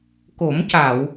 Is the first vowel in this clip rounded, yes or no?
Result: yes